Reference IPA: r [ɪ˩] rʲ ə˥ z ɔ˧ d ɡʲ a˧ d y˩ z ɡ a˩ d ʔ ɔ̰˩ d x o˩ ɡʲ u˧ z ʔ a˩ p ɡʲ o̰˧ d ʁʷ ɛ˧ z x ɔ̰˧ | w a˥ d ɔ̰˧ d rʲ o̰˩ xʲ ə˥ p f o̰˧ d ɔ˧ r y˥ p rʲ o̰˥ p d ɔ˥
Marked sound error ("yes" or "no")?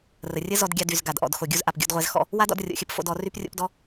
yes